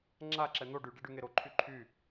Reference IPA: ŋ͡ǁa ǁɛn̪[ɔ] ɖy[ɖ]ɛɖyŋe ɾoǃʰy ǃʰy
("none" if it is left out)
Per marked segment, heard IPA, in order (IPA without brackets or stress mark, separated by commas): o, ɖ